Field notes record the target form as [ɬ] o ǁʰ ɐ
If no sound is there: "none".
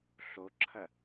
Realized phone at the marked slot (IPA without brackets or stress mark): ɬ